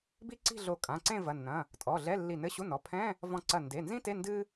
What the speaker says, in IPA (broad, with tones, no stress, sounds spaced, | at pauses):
b i˥ ǀ i̤˥˧ ɮ o˧˩ kʼ ã˩˧˩ ǀ ẽ˥˧ v ɐ˩˧˩ nː ɐ̃˩˧˩ | tʼ ɔ˩˧˩ ɮ ɛ˧˥˧ lː i˧˩ n ɘ˧˥˧ ɕ u˧˥˧ n ɔ˩˧˩ pʰ ɛ̃˧˥˧ | v ɔ̃˧˩ ǀ ɐ˧˩ n d e˩˧˩ n z ĩ˥ t e˧˥˧ n d ɨ˥